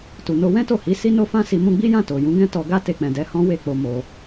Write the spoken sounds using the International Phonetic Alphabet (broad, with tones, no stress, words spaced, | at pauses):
tu˨no˧ wɛ̃˦to˦˨hi˨˦ si˦no˦fã˦si˧ mũ˧ɡ͡bi˦jã˦˨ to˨ jũ˨˦ɡɛ̃˦ tɔ˧ɡa˦ te˧k͡pɛ̃˨dɛ˨˦ hɔ̃˦we˦˨k͡po˧ mo˧